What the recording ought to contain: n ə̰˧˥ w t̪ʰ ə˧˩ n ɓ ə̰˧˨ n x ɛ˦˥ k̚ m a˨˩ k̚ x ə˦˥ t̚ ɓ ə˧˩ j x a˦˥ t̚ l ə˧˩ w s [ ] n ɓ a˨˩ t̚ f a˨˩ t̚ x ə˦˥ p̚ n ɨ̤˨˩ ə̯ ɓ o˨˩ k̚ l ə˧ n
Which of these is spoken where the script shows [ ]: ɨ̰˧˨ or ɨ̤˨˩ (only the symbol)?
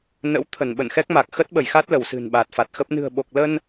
ɨ̤˨˩